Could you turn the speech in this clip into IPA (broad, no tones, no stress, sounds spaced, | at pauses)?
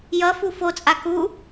j ʌ f u f o t͡sʼ a k u